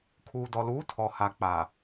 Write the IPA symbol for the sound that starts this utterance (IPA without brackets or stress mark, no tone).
kʰ